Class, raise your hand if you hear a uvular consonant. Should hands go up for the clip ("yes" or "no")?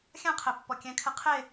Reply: yes